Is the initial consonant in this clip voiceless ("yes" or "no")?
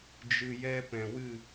no